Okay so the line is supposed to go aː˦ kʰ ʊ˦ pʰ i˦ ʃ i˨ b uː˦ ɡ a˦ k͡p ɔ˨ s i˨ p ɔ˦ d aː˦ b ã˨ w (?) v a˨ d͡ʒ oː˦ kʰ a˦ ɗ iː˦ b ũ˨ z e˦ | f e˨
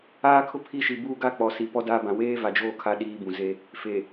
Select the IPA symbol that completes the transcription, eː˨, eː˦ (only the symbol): eː˦